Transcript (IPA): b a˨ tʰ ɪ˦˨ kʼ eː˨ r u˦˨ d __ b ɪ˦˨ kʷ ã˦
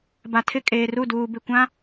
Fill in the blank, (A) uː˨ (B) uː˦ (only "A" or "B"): A